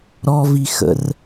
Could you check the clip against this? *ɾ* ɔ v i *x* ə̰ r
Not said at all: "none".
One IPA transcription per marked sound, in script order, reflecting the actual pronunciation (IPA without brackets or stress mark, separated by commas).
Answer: ɾ, x